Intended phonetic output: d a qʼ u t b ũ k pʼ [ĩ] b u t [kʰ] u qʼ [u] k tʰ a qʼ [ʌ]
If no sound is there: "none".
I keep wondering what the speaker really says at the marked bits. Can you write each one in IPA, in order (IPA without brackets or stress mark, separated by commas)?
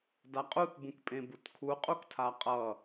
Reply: ẽ, kʰ, u, ʌ